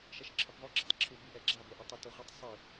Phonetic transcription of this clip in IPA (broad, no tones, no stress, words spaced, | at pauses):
ʃɛʃǁʰɪpðˤʊ ɡ͡ǁɔtˤǁʰub iʔɛɡ͡ǁa boʔɔtˤɪ toʁʷitˤ sˤi